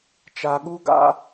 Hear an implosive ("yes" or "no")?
yes